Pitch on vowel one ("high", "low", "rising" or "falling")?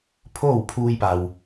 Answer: falling